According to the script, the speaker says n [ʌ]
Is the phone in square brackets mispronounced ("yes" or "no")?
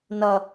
no